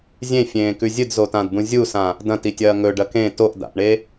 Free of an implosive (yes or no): yes